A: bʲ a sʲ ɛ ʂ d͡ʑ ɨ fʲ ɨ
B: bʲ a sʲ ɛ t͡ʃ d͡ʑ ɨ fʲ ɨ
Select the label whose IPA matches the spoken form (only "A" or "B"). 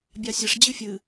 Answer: A